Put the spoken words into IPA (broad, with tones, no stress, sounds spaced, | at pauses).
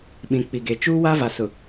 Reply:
ɓ ĩ˨ k͡p i˨ ɡ e˨ t͡ʃ uː˦ w a˦ v a˨ s ʊ˨